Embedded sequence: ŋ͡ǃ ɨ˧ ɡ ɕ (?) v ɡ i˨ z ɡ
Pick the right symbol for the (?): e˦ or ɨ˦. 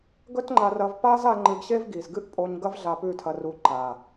e˦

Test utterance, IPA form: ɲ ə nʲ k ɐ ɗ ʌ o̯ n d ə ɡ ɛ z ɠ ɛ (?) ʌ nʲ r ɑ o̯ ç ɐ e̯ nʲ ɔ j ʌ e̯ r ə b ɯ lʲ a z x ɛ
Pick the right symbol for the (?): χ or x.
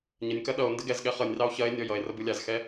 χ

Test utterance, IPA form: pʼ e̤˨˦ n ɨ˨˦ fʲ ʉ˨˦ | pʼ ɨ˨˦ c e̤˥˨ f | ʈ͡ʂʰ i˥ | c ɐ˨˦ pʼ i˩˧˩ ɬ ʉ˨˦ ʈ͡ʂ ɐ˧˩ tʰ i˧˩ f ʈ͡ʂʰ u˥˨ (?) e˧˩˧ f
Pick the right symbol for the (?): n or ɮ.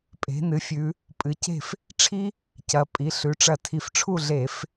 ɮ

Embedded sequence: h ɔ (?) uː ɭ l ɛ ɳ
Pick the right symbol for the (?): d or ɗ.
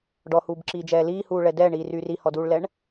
d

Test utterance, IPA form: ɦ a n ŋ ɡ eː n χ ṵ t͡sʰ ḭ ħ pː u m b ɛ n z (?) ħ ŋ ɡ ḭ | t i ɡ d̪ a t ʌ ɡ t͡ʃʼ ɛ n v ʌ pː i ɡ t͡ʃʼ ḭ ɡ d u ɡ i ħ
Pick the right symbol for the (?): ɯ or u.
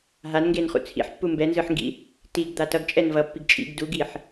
ɯ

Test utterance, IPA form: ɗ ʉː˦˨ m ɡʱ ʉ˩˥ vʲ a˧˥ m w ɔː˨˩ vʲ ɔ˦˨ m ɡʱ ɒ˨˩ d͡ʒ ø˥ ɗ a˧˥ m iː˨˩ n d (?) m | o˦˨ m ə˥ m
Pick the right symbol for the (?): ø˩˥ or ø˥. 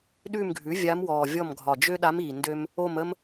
ø˥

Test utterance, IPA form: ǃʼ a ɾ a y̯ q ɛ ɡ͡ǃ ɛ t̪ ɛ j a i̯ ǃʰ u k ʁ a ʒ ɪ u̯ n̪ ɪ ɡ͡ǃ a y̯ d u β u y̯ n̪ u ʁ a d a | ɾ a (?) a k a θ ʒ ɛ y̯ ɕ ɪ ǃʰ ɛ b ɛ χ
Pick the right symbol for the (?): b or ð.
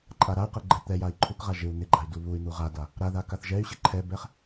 ð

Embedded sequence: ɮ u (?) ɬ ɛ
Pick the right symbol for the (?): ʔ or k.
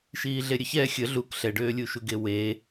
k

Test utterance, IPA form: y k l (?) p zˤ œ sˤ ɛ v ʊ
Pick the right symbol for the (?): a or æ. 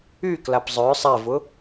a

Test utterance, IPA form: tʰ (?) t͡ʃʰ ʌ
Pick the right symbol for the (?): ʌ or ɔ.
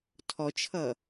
ɔ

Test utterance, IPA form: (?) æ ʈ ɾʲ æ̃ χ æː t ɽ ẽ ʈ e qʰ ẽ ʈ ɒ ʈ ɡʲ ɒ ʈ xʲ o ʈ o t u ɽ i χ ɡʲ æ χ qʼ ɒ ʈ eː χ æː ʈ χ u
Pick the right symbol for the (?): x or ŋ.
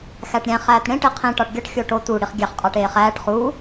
x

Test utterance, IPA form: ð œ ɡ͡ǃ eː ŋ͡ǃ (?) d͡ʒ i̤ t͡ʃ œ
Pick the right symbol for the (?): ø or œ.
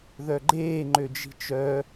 ø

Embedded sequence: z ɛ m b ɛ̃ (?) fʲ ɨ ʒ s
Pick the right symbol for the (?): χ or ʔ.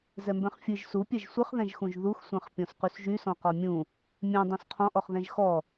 χ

